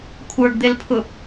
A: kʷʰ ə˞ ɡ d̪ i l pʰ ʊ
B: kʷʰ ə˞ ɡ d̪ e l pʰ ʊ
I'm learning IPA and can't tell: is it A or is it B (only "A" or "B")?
B